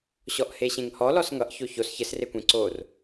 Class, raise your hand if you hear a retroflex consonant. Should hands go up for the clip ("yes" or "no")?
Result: no